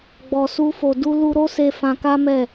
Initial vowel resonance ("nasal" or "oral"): oral